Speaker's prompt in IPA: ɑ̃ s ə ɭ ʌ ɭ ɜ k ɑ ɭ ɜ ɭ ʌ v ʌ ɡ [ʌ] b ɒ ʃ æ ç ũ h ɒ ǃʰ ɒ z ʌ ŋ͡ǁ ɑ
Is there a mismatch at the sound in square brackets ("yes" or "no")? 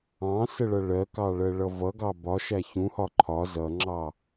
yes